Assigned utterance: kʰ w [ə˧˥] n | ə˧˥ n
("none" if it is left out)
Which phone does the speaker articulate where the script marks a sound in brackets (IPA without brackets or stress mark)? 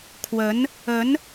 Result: ə˧˥